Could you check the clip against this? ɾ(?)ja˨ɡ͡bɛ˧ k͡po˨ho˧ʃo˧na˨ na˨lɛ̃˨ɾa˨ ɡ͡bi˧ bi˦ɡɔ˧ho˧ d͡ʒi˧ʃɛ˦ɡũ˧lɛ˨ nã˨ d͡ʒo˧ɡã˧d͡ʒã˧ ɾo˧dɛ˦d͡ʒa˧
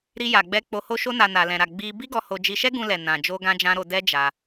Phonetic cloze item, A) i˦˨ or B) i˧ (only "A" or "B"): B